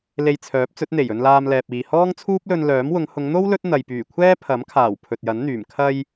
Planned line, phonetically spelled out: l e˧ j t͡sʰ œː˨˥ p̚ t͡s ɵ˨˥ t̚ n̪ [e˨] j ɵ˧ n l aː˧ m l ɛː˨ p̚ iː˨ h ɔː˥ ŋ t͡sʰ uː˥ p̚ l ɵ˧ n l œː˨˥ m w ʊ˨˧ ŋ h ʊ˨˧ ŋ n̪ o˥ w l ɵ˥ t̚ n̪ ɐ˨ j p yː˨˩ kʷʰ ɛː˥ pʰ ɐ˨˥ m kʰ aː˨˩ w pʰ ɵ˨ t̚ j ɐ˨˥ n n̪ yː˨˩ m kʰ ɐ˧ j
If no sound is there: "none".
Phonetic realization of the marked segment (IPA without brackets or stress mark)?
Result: e˨˩